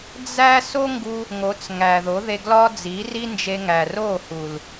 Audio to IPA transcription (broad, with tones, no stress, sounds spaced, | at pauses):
d͡z æ˦ s o˦ ŋ ɡ u˧ | ŋ o˨˦ t͡s ŋ æ˨ ð o˨˦ ð e˧ ɡ l ɒ˧ d͡z i˨˦ r i˦ n d͡ʒ e˧ ŋ æ˨ r o˦˨ h u˨ l